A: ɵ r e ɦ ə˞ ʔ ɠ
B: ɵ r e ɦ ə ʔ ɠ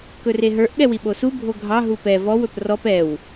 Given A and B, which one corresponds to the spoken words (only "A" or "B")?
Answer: A